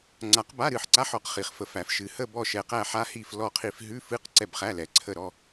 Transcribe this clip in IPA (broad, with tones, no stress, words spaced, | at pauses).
ŋ͡ǀa˨˩˦qba˧˥˧ ɾɨ˦˨ħǀa˧˥˧ħ ɔ˨˩˦qχi˩χ fə˨˩˦fæ˨˩˦f ʃɨ˩hə˦˨ bɔ˦˨ʃɛ˩qæ˦˨ħa˧˥˧ hi˦˨flɔ˦˨qʰi˦˨f ɦʉ˧˥˧fɨ˧˥˧q ǀɛ˦˨bχæ˧˥˧ lɛ˩ ǀʰə˦˨ɾɔ˧˥˧